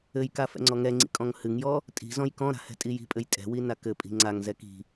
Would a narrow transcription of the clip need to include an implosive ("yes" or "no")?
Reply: no